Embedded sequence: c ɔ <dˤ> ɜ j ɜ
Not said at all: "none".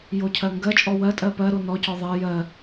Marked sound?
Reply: ðˤ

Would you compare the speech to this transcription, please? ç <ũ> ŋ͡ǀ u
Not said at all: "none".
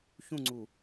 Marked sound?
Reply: ũ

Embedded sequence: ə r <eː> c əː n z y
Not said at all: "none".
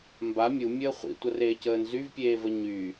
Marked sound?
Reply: eː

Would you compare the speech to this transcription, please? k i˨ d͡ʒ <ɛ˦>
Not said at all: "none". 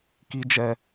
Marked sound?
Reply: ɛ˨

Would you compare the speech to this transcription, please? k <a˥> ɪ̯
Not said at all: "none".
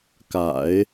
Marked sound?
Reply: a̰˨˩˦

